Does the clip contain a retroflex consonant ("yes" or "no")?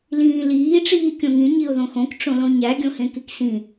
yes